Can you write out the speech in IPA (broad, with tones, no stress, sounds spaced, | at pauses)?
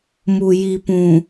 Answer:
m u˨ j i˨ p ũ˨